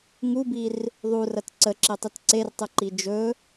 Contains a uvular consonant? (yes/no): no